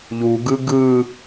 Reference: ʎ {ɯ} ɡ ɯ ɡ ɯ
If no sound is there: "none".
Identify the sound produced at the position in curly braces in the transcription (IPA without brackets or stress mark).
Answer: u